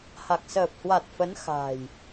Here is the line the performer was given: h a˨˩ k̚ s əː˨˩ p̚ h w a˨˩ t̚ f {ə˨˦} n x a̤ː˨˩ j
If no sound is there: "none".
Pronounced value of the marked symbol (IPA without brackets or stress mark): ə˨˦